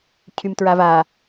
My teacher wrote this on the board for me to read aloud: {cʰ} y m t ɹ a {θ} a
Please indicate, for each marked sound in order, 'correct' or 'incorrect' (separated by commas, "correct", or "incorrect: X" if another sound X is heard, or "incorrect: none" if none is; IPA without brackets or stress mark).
correct, incorrect: v